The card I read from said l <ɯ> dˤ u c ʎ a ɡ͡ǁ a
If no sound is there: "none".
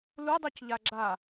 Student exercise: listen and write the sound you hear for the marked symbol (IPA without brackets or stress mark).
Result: u